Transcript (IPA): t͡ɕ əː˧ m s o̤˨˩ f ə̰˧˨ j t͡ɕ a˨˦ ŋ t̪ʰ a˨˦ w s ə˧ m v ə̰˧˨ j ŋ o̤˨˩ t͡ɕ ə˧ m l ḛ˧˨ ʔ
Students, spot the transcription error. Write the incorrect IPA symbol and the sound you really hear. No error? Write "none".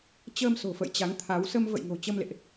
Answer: none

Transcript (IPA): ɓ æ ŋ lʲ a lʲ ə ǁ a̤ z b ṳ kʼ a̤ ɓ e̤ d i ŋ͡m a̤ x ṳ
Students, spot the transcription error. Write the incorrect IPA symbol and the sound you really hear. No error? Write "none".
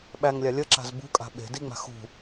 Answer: none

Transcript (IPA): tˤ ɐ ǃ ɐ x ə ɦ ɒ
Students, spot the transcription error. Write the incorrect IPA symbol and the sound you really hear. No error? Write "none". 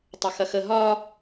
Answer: ǃ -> x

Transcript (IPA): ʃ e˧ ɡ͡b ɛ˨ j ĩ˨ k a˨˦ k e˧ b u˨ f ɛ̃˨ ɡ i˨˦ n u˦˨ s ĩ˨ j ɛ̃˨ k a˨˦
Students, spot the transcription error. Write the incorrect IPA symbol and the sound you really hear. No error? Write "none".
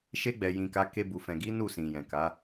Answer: none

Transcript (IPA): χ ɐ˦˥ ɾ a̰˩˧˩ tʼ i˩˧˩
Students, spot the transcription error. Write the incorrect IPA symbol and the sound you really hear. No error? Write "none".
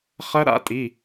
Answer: none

